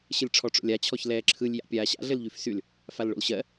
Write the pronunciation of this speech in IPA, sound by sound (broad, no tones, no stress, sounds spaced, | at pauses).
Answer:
ɕ ɘ lʲ ʈ͡ʂʰ ɔ ʈ͡ʂ o̰ lʲ a t͡ɕʰ ɔ ç l ɛː ǁʰ ɯ lʲ j a̰ pʲ aː ɕ a̰ ɮ ɘ l ʎ y f s y l | f a l ɭ o̰ l ɕ ɜ